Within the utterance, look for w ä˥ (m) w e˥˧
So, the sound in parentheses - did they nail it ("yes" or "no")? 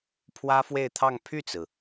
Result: no